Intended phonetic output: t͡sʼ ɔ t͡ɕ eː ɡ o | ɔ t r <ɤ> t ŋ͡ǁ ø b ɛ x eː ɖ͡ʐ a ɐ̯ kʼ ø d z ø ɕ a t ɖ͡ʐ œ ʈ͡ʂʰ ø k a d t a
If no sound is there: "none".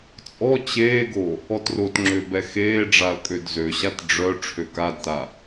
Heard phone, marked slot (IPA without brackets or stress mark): o